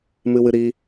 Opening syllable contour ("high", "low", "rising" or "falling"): high